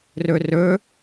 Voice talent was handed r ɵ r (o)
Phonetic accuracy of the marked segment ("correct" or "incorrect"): incorrect